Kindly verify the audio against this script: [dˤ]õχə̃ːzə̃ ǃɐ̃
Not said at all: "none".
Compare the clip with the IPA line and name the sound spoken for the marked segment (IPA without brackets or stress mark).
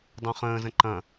dˤ